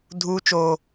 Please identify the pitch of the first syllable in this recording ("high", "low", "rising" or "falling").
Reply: high